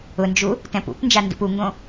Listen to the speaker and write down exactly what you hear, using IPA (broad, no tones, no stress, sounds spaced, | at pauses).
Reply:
ʊ n d͡ʒ u | t ɛ̃ p ṵ p n d͡ʒ a n d ṵ p u ŋ ɡ õ